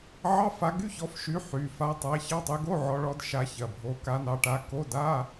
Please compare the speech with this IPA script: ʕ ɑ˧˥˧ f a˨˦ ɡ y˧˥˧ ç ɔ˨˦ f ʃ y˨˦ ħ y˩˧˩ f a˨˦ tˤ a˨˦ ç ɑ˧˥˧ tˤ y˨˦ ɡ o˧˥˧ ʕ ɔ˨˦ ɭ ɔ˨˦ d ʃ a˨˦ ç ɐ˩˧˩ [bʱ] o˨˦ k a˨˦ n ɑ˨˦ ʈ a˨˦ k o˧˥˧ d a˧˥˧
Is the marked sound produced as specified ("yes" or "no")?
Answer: yes